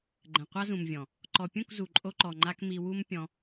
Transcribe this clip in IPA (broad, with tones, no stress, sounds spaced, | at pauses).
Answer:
ɡ͡ǃ ɛ̃˨ qʷ a˦ z ũ˨ m vʲ ɔ̃˨ | ǃ ɔ˨ pʲ ũ˦˨ k z u˨ ǃʼ o˧ ǃ ɔ˨ ŋ͡ǃ a˧ k m i˧ w u˦ m pʲ ɔ̃˧